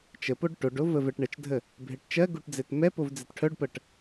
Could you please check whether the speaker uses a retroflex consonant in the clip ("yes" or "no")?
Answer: yes